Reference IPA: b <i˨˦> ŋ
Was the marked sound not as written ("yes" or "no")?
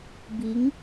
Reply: no